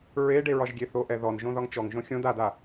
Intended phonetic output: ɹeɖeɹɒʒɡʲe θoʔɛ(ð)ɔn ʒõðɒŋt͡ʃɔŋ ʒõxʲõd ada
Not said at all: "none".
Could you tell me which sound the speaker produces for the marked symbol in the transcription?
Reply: ð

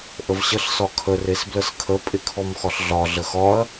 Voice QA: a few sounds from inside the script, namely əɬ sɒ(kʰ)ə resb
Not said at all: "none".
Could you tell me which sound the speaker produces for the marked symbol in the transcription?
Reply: kʰ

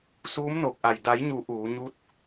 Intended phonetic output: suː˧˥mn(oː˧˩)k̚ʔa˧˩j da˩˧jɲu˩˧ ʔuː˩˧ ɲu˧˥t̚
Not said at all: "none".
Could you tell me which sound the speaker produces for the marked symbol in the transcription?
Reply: oː˧˩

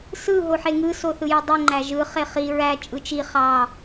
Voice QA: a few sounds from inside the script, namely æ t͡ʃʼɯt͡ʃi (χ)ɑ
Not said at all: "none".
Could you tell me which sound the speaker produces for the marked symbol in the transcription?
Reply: χ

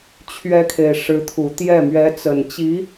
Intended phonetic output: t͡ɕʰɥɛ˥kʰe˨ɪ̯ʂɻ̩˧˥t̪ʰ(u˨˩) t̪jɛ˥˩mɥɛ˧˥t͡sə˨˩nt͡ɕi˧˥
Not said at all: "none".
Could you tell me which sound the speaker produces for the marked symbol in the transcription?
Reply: u˨˩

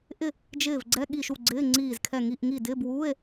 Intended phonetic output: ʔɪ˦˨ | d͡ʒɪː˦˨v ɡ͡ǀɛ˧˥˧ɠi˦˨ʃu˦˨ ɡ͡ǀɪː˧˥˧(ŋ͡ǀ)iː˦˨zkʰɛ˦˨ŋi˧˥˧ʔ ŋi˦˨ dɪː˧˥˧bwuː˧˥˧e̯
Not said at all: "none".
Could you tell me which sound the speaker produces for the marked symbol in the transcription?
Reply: ŋ͡ǀ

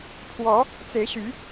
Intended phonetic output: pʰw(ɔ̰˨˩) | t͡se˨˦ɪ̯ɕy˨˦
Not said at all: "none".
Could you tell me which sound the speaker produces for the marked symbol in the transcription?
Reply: ɔ˨˦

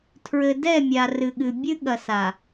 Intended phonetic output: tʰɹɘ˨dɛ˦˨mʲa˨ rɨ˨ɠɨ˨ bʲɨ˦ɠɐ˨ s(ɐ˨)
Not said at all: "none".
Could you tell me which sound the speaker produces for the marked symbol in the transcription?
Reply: a˨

